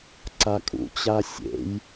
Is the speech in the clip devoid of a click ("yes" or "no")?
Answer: no